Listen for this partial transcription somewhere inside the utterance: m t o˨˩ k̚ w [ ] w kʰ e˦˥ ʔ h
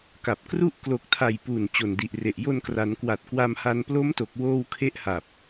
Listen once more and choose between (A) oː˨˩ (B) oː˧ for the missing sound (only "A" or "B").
B